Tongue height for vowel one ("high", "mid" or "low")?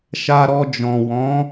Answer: low